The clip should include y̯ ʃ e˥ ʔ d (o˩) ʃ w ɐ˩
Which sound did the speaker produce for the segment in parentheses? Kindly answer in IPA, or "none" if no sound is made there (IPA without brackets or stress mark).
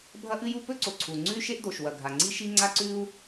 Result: o˩